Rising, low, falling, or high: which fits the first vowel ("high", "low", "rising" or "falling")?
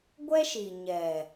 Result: high